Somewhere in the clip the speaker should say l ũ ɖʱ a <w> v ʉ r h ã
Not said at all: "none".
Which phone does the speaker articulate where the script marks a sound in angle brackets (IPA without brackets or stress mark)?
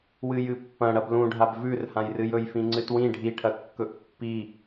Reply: b